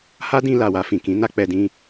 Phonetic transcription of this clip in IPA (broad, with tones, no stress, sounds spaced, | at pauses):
h a˦ d ĩ˧ l a˨ w a˧ f ĩ˨ k ĩ˨˦ n a˦ k͡p ɛ˧ d ĩ˧